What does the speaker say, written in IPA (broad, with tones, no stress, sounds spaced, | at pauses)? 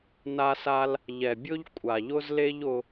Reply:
n a˧ s a˧ l | ʎ ɛ˨ bʲ ʊ˦ ʎ kʷʼ a˨ ʎ ʊ˦ z l e˦ ʎ ʊ˧